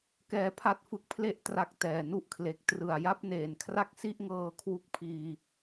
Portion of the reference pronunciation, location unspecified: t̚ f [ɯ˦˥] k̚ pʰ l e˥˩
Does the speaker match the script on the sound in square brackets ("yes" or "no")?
yes